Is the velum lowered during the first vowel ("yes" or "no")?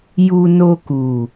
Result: no